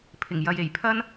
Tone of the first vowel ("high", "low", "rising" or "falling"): low